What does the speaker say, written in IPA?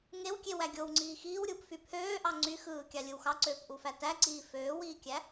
ŋ e w kʲ e w æ ɡʲ o w ŋ͡ǀ iː x iː w ɾʲ uː p f y pʰ øː ʔ ɑ ŋ͡ǀ y x ɯː kʲ ɑ lʲ ɯ w x ɑ ǀ øː p ʔ u f æ t æ ǀ iː f øː w iː kʲ æ

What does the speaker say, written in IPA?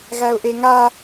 ɣ æ ʊ̯ ʔ e ŋ a

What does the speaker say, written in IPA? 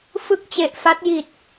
f ɯ˥˩ k̚ t͡ɕ e˨˩ ʔ f a˦˥ t̚ j i˨˩ t̚

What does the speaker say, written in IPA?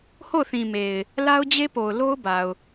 h o˦˨ ʊ̯ θ ĩ˨ m e˨ ɪ̯ | l a˦ ʊ̯ d͡ʑ e˦ p o˨ ʊ̯ l o˦ ʊ̯ b a˨ ʊ̯

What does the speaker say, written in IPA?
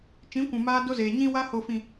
t͡ʃ ĩ˨˦ kʷ ũ˨ m aː˧ d o˧ z eː˨ ɲ ĩ˧ w a˧ h o˨ f ĩ˨

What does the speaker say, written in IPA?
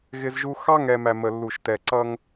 ɣ ɪ˦ z ʒ u˦ x ɑ˦ ŋ ɛ˨ m æ˨ m ə˨ lː u˨ ʃ t ɛ˨ ǀ ʌ˦ ŋ

